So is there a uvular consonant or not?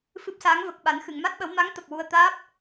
no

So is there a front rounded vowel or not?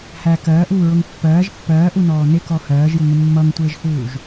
no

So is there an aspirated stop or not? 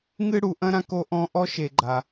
no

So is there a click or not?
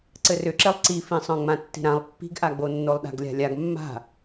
yes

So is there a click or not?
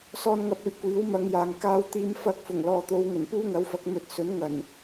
no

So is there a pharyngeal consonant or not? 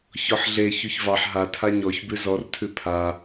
yes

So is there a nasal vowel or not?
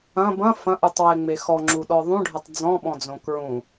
yes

